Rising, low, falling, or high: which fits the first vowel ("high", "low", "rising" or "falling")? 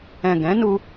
low